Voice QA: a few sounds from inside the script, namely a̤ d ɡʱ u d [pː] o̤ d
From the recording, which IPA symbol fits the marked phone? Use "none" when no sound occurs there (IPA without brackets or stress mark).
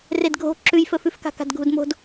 m